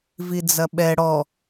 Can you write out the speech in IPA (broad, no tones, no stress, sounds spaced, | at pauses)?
v i d͡z ɐ ɓ ɛ ɽ ɔ